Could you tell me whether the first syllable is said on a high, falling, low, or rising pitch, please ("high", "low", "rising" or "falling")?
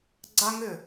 high